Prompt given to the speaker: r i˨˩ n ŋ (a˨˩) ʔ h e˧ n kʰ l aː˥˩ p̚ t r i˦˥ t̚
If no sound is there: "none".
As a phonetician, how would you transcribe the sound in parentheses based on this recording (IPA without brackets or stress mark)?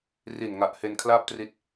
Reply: a˨˩